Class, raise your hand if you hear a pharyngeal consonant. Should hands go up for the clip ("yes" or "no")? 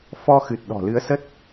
no